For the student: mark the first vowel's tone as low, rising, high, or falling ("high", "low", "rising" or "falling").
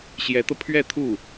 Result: rising